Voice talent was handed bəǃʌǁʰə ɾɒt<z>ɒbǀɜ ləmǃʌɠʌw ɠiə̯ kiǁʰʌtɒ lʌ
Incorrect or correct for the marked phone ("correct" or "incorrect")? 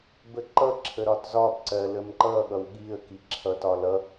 correct